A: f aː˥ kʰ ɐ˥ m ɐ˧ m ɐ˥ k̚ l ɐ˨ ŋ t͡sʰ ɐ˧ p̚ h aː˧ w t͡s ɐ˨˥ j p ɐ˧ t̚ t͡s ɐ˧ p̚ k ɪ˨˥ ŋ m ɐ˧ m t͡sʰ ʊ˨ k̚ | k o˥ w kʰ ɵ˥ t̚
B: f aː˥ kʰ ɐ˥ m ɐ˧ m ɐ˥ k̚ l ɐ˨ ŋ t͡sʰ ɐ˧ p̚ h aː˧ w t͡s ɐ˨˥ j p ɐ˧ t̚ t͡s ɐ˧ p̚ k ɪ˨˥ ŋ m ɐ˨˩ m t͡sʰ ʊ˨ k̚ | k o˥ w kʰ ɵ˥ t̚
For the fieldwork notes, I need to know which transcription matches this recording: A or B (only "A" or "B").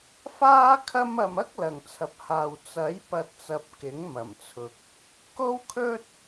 B